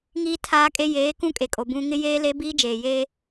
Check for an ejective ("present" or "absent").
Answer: present